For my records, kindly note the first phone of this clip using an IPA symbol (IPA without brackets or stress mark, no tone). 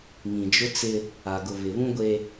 ŋ